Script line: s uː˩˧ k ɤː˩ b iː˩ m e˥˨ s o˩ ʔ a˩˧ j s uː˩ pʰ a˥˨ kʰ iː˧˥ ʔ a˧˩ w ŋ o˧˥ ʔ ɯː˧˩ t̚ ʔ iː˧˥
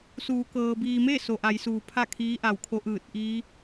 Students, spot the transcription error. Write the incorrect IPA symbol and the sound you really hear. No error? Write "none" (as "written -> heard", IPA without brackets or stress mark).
ŋ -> kʰ